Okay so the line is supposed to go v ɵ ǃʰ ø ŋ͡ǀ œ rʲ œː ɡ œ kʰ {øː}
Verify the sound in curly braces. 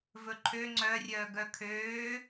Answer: correct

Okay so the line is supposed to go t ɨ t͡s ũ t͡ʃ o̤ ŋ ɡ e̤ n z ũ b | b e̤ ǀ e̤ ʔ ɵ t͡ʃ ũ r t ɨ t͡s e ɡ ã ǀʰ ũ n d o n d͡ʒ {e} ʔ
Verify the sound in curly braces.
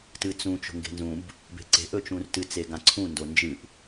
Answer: incorrect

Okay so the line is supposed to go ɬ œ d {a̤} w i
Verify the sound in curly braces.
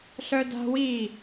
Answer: correct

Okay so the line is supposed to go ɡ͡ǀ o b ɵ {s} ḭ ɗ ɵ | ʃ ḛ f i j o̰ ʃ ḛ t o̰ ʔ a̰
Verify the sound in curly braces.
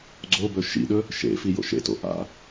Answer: incorrect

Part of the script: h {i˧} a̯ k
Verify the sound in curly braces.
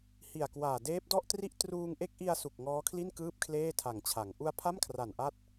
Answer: incorrect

